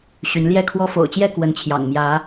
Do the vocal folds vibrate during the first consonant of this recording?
no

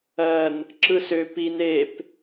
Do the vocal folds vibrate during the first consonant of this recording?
yes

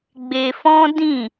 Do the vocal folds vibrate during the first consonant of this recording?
yes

